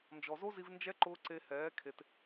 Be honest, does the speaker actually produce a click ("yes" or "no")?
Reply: yes